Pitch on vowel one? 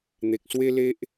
low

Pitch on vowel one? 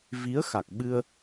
rising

